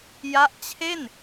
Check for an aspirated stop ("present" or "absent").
present